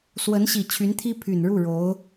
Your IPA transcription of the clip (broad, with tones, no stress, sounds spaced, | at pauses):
s w ə˧˥ n ɕ i˨˩ t͡ɕʰ y˧˥ n t̪ʰ i˥ pʰ y˨˩ n ɻ u˥˩ ɻ o˧˥ ʊ̯